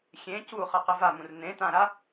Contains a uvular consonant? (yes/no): yes